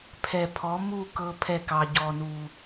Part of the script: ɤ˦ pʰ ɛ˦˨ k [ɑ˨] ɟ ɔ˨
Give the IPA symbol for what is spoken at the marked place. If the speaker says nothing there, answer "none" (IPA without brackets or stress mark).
ɑ˨